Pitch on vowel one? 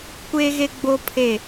high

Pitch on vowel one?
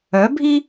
rising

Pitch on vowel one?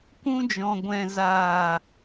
high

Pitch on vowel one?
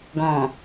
low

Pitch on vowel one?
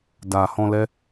low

